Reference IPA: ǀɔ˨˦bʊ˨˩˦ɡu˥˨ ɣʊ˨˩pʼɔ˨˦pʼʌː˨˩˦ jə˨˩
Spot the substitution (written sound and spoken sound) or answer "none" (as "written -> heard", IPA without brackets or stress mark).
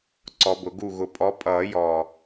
ə˨˩ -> ɔ˨˩